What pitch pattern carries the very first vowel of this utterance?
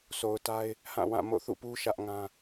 low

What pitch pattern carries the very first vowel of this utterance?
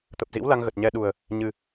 low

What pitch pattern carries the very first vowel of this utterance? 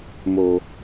low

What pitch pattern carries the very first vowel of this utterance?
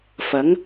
rising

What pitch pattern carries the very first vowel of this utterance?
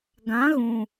rising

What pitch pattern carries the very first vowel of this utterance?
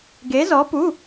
rising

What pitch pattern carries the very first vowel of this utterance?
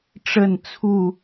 falling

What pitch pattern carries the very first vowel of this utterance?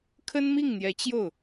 high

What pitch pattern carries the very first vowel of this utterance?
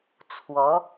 rising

